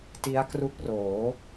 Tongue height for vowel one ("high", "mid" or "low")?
high